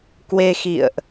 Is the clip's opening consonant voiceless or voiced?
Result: voiceless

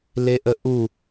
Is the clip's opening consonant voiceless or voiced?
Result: voiced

